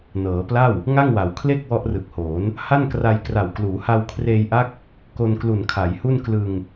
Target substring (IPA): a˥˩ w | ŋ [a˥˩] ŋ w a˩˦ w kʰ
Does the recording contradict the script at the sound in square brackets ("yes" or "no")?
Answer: no